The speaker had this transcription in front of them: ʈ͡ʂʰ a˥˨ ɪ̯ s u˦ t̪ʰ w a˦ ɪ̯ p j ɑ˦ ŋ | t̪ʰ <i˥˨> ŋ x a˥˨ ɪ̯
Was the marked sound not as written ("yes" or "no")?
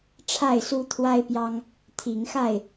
yes